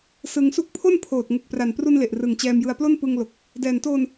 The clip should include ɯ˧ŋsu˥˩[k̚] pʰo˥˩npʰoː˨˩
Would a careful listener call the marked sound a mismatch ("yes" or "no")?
no